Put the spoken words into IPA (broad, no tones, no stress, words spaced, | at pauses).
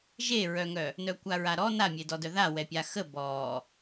ʒeɹœŋœ | nœkʷaɹaɾɔ namʲedɔdœ ða wɛpʲaxə bɔ